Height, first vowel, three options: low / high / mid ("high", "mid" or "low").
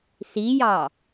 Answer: high